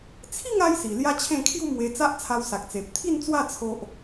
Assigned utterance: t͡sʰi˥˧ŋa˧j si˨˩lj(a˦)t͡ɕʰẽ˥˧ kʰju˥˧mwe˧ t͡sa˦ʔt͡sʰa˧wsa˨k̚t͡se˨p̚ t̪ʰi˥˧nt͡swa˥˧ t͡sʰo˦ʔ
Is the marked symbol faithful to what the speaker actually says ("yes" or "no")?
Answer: yes